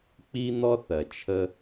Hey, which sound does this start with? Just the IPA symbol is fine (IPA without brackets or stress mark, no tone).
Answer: k͡p